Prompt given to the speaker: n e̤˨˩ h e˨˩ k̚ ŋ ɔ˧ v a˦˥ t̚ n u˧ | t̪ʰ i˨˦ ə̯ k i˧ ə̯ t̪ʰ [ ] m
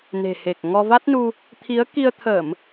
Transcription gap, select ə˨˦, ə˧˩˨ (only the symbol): ə˧˩˨